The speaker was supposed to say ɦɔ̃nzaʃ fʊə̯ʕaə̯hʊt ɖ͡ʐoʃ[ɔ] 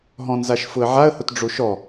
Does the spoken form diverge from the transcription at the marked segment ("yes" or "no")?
no